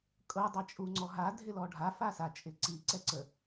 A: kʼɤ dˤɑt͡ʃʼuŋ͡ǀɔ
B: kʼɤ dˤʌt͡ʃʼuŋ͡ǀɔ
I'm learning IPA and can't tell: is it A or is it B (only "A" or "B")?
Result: A